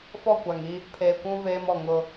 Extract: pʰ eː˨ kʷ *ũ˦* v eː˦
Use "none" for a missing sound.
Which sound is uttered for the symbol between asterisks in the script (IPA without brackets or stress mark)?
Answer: ũ˦